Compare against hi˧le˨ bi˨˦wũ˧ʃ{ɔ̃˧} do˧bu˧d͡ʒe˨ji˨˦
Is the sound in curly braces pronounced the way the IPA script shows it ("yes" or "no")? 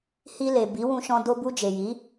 yes